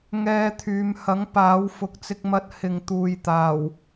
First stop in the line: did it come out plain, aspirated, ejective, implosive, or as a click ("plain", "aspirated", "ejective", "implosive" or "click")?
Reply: aspirated